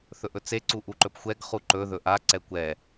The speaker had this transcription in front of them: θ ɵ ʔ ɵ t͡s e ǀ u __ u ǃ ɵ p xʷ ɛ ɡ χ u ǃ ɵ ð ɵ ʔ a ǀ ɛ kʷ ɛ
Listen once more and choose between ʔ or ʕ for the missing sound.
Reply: ʔ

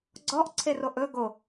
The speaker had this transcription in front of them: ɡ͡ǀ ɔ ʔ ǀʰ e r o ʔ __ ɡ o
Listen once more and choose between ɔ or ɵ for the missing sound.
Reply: ɵ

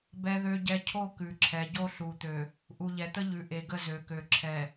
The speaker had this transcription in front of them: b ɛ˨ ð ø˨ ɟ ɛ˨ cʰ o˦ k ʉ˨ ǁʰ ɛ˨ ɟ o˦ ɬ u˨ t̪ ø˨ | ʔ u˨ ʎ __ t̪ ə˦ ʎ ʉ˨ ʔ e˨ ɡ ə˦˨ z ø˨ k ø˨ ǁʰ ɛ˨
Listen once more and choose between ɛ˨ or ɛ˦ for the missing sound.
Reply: ɛ˨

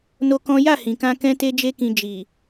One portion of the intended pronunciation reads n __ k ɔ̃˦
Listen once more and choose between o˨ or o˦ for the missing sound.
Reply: o˦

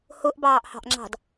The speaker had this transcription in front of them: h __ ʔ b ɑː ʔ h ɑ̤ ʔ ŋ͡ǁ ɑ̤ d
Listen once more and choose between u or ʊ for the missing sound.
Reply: ʊ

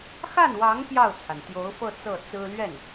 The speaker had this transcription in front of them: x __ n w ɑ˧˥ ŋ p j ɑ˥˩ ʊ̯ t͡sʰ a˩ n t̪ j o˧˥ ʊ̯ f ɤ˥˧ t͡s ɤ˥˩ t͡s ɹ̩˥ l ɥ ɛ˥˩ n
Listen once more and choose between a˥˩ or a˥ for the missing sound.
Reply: a˥˩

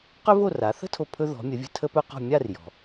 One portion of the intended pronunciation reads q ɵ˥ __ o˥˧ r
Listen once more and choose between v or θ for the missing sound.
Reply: v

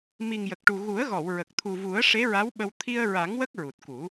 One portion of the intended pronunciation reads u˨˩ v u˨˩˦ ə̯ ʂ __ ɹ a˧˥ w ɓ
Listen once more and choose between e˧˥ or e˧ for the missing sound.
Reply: e˧˥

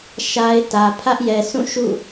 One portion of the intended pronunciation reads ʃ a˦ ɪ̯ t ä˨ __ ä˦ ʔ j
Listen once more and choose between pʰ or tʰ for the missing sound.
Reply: pʰ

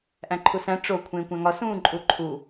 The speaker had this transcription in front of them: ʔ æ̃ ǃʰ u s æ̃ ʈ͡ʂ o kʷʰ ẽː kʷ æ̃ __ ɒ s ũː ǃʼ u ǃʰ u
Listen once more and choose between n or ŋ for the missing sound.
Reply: ŋ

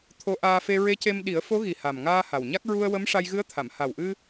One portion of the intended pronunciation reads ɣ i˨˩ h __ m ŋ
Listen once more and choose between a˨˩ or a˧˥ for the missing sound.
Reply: a˨˩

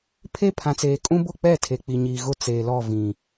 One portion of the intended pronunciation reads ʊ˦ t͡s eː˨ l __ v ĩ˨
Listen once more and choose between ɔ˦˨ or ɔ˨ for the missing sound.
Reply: ɔ˦˨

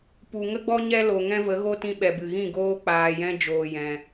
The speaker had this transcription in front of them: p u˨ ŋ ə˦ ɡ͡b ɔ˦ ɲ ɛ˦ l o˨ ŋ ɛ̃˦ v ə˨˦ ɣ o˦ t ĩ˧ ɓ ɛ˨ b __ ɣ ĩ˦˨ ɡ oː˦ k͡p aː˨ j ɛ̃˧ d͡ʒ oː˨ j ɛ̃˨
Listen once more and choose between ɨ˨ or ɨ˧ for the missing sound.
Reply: ɨ˨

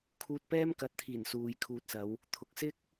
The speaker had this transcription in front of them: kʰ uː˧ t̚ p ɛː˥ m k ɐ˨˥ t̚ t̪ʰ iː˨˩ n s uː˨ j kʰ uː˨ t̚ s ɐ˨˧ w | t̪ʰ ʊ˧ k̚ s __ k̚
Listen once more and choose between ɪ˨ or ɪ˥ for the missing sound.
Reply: ɪ˥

